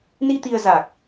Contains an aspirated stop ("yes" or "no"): no